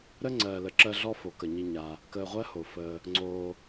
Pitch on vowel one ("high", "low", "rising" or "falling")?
high